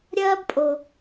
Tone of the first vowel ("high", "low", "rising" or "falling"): high